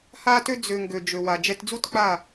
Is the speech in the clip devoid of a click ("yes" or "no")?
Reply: yes